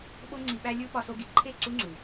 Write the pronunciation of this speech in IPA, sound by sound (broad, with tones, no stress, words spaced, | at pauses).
ɓo˧ŋ͡ǀi˨ɓæ˧lʲu˧ ɓɒ˧so˧ɡi˨ ǃʰe˦˨ ǀu˦ŋ͡ǀu˨